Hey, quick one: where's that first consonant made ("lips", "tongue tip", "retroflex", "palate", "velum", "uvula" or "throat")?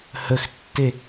throat